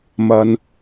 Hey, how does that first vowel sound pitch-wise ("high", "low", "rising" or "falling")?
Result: low